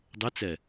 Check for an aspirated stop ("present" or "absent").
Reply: absent